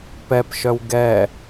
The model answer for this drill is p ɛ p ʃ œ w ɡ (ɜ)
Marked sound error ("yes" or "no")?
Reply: yes